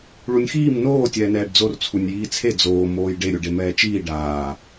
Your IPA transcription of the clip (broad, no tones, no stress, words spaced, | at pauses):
ɭunʲxiːm noː tʲɛːnɛːɖd͡zor t͡sʰunʲjiːt͡sʰe d͡zoː moːjɖe ɾʲuɖemɛːt͡ʃiː ɖaː